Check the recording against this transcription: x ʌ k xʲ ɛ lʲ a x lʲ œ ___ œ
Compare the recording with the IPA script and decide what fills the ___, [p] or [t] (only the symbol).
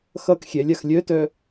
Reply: t